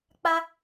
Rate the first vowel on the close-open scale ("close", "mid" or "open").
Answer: open